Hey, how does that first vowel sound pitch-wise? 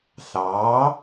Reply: rising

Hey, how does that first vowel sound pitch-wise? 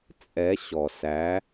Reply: rising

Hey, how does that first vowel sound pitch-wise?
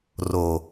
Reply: low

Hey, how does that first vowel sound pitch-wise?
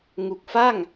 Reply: low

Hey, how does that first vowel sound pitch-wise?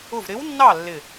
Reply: falling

